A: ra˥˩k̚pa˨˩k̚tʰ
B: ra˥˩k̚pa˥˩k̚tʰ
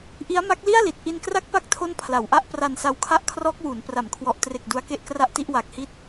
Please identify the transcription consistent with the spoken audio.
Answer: B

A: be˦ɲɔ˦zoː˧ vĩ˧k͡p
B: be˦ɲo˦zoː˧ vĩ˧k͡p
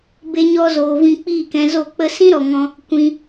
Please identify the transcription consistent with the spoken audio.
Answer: A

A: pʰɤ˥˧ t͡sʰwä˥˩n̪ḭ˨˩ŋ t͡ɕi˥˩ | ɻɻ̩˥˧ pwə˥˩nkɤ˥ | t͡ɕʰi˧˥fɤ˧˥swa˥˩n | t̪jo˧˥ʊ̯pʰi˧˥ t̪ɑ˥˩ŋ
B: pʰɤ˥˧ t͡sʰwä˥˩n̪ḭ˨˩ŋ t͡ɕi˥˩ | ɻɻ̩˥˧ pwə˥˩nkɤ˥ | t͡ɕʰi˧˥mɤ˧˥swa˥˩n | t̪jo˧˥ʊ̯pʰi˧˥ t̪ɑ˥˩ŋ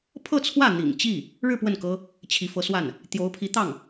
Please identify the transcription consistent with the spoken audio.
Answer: A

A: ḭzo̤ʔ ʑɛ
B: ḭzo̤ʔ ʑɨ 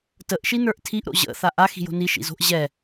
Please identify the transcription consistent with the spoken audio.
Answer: A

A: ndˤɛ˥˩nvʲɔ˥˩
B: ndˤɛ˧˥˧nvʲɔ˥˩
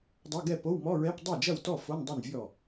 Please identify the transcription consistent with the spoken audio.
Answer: A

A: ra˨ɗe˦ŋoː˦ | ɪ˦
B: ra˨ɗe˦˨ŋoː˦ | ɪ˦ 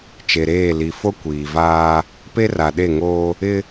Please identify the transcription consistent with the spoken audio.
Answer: B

